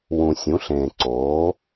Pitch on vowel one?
low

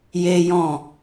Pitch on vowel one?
high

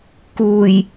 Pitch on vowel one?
low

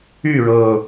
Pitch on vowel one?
falling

